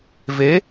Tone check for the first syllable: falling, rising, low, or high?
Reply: rising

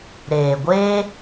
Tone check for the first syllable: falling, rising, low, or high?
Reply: low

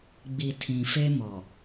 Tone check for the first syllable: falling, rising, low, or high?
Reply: low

